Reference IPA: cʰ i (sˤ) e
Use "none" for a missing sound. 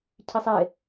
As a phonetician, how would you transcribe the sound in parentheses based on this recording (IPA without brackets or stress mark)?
sˤ